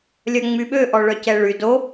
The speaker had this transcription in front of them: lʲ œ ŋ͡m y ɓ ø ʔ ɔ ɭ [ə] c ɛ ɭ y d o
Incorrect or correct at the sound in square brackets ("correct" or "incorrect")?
incorrect